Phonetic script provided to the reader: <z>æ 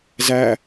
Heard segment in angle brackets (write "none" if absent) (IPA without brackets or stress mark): z